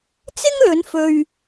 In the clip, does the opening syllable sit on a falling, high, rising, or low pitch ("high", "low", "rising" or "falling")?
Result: high